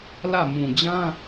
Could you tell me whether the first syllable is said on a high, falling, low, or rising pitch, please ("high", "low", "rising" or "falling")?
falling